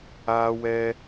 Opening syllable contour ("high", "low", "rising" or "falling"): high